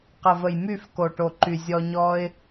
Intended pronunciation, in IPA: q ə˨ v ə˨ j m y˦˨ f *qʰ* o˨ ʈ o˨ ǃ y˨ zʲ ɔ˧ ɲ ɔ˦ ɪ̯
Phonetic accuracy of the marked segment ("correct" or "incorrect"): incorrect